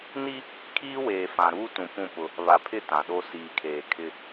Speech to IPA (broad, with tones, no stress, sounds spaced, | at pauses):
n i˦ | kʰ iː˦ w eː˨ f ã˨ ɾ uː˦ t ũ˨ p ũ˦˨ p ʊ˦ | β a˨ pʰ ɪ˦˨ t ã˨ ɗ o˦ s iː˨ kʰ eː˨ kʰ ɪ˦